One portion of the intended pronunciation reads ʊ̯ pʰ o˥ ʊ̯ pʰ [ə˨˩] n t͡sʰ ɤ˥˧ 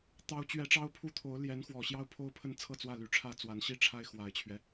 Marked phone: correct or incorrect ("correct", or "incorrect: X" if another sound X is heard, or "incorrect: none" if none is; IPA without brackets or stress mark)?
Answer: incorrect: ə˥˧